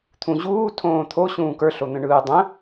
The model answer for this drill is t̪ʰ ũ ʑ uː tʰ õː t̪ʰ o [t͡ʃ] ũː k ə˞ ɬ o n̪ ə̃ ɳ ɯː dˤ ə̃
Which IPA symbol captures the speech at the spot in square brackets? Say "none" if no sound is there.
ɕ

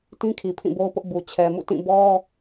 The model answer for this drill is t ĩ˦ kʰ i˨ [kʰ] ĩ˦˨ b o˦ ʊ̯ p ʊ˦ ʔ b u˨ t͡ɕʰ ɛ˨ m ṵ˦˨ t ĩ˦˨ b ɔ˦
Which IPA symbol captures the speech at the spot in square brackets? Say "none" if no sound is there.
pʰ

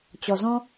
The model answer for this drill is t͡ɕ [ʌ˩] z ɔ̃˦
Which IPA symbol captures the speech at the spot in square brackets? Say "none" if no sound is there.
ɔ˩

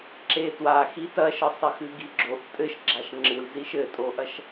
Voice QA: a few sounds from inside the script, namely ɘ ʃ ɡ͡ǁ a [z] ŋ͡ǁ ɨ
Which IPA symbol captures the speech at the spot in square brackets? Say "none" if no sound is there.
ʃ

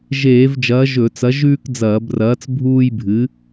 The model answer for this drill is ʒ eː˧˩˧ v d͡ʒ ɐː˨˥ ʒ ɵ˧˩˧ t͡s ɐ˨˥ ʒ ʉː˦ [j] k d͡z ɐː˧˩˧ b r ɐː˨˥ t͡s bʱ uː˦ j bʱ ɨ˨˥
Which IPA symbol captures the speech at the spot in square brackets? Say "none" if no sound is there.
none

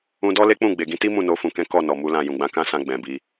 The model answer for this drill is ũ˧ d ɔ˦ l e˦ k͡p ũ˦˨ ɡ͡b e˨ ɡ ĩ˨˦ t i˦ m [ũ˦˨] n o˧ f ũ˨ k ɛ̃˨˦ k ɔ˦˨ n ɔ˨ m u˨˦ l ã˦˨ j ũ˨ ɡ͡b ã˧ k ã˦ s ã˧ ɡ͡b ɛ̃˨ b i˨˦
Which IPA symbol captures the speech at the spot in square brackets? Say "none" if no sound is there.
ũ˦˨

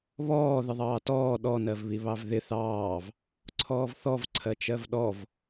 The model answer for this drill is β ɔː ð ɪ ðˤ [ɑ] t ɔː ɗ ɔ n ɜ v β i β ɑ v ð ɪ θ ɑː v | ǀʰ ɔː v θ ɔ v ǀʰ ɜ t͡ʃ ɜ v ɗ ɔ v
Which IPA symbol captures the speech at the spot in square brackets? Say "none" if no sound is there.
ɑː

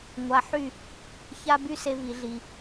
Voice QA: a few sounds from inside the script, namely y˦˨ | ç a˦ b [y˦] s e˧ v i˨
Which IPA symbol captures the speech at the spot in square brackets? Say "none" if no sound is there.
y˦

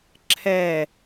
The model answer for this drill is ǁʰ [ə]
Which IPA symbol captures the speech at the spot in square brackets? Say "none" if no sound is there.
ɛ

